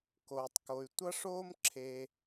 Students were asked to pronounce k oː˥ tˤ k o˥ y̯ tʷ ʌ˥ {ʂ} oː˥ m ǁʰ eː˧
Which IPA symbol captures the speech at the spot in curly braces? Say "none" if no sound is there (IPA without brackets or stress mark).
ʂ